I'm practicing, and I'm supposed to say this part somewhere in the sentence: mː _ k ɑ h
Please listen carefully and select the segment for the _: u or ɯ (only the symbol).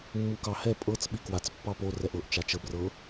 u